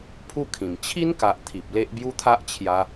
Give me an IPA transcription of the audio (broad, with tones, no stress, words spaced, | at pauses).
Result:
pʰu˥˧kʰĩ˨˩m t͡ɕʰi˦nka˨ʔ t̪ʰi˨p̚le˦ʔbju˦ t̪ʰa˦ʔt͡ɕʰja˧